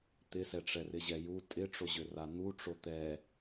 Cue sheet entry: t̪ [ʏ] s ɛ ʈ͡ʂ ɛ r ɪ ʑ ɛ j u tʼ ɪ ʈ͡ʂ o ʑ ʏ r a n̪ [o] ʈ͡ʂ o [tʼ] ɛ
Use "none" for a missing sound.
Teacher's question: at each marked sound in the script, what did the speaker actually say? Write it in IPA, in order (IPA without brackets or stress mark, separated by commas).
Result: ɪ, u, t̪